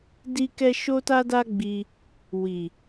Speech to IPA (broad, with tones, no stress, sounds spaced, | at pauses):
d i˦ k ɛ˦ ʃ o˦ t a˦ d a˦ ɡ͡b i˧ | w i˨